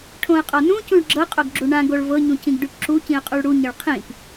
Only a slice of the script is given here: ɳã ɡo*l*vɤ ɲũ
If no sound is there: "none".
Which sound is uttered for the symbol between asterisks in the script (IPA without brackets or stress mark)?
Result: ɭ